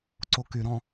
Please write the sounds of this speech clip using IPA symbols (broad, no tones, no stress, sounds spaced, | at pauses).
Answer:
ǀ o k y ɾ ɔ̃